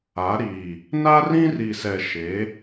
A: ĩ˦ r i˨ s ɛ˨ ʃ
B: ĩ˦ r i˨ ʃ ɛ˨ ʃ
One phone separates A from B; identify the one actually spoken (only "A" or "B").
A